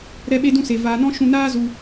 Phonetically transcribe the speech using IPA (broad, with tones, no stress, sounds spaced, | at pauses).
ɾ ɛ˦ ɓ e˦ d ũ˦ s e˧ v aː˧ n ɔ̃˦ ʃ ũ˧ n aː˦ z u˧